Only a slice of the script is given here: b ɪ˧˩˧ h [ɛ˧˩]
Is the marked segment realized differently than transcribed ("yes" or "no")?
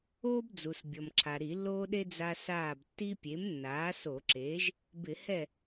yes